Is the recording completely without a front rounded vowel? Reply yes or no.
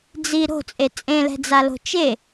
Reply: yes